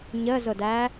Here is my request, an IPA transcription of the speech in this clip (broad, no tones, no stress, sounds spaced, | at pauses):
ɲ ə z ʊ d æ